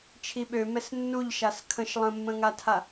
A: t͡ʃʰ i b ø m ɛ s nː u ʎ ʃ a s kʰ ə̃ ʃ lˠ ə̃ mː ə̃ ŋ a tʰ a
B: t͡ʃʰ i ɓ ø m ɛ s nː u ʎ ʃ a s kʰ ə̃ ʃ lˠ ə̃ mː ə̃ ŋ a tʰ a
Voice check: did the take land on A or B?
B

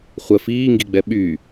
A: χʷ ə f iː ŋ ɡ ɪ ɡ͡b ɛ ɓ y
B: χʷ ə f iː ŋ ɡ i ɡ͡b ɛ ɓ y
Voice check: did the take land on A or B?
B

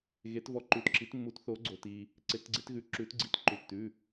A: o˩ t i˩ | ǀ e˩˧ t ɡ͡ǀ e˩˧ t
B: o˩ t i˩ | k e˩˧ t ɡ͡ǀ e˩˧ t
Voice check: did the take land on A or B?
A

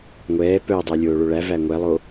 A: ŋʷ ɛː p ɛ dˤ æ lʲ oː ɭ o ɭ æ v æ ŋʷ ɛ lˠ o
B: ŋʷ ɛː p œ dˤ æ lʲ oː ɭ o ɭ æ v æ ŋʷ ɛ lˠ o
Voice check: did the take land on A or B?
B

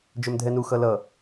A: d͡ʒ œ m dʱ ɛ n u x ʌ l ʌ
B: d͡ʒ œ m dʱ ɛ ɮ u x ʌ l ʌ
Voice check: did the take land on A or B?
A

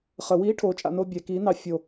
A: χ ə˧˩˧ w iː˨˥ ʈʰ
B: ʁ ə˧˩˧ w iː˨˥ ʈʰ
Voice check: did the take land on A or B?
A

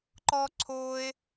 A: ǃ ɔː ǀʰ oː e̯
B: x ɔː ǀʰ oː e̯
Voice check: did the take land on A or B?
A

